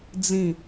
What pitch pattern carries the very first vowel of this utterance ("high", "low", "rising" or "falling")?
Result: falling